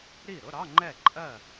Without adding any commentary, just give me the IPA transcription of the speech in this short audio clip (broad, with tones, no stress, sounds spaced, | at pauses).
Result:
ɾ i˥˩ ɾ ʊ˧˥˧ ɾ ɑ˧˥˧ ŋ͡ǃ ɛ˥˩ ǃʼ ɜ˥˩